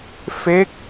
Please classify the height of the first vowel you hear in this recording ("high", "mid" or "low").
mid